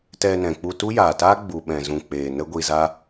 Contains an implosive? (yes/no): yes